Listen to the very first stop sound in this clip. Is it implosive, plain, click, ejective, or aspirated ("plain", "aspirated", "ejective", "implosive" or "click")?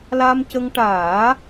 plain